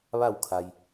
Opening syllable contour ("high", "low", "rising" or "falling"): falling